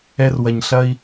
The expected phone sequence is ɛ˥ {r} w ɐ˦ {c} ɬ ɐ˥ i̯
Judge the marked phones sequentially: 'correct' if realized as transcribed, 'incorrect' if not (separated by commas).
correct, incorrect